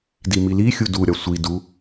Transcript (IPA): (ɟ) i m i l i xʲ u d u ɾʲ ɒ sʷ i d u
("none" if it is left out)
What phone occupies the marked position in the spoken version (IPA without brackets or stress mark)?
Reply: d